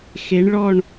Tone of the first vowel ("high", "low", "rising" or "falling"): rising